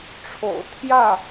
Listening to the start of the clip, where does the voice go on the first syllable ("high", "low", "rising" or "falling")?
low